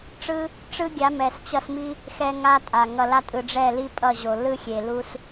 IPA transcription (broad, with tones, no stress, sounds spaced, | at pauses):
ʈ͡ʂ ɯ˦ | ʈ͡ʂ ɯ˦ ɡʲ a˨˦ m ɛ˨ s t͡ɕ ʌ˧ s m i˦ | x ɛ˧ ŋ a˦ tʼ a˨ ŋ ʌ˨ l a˧ tʼ ɯ˨ ɖ͡ʐ ɛ˦˨ l i˦ pʼ ʌ˦˨ ʑ o˨ l ɯ˦ xʲ e˨ l u˦ s